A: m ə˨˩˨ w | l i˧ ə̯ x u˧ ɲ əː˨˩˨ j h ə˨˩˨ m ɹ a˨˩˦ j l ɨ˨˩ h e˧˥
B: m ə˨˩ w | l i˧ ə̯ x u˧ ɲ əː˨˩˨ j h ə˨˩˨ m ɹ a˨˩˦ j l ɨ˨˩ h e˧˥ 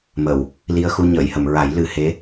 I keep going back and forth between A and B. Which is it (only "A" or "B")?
A